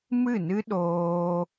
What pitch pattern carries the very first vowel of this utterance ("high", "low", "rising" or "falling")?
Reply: falling